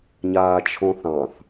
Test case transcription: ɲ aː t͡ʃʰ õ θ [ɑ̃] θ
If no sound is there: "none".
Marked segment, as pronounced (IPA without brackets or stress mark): ɑ̃